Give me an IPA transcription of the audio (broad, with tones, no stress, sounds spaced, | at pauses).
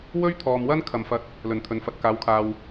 w ɵ˥ ɥ t̪ʰ ɔː˨ m w ɐ˥ n kʰ ɐ˨ m f ɐ˧ t̚ | l ɵ˨˩ n t̪ʰ ɵ˨ n f ɐ˨ t̚ k aː˨˥ w kʰ aː˨ w